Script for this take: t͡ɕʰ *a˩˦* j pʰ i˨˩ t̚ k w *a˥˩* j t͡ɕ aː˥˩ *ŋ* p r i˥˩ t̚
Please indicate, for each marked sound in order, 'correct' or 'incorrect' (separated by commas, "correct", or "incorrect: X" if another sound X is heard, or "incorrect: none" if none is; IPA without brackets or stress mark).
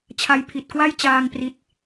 incorrect: a˥˩, correct, correct